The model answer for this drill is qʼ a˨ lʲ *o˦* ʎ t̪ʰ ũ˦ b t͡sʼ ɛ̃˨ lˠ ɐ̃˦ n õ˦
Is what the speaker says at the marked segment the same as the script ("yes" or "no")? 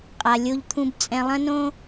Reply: yes